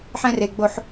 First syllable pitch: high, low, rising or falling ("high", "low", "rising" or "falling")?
high